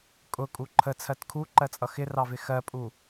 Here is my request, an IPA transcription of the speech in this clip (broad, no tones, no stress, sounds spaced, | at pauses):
kʼ ʊ kʼ u ǃʰ ə t͡sʰ ɜ t kʰ u ǃ ɜ t͡sʼ ʌ x ɪ r ɑ v ɪ x ɜ pʼ u